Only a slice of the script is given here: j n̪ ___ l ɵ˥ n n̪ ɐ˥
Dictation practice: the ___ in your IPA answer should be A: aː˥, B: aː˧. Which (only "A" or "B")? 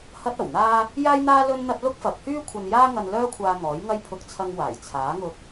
A